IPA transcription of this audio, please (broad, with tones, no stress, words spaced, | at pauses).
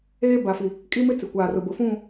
eː˦ba˨fi˨ | kʼi˦mɪ˦ t͡sɪ˨kʷaː˨rʊ˨bʊ˨ fũ˦˨